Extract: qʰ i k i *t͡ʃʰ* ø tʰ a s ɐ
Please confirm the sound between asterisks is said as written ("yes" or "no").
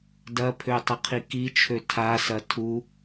yes